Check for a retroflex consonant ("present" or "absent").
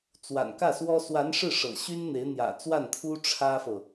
present